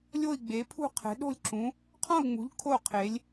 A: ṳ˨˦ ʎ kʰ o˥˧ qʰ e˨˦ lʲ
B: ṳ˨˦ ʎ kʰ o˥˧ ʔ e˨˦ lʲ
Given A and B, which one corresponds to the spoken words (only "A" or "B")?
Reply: A